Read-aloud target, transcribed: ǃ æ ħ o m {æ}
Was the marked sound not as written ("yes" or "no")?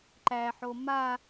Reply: yes